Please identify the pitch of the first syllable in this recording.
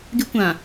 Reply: high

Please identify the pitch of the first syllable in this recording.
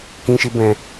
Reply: high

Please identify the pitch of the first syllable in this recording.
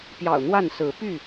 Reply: low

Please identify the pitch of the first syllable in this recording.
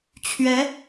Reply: rising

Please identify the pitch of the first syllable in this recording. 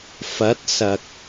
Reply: rising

